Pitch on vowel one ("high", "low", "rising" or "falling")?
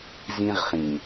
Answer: high